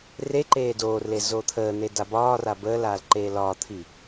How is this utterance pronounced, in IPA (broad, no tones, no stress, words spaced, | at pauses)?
reǃeː doːrle zot̪ʰəːn̪e dabɒːra bəːlaːl ǃeːlɒːt̪ʰi